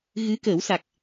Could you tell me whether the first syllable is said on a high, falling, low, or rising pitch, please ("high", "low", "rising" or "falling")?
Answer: rising